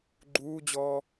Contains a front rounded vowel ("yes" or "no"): no